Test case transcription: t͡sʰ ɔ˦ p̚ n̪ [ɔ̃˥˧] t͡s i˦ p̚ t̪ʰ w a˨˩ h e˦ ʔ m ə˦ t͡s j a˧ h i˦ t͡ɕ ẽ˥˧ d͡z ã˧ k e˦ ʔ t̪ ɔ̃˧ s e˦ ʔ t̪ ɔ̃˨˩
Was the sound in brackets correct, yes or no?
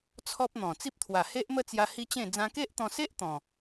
no